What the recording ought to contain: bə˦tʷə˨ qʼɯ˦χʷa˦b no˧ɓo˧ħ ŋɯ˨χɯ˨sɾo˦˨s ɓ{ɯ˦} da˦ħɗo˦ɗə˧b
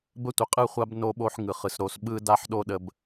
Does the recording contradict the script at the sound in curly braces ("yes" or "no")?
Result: no